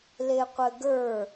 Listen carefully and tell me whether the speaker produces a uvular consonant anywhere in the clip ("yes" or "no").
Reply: yes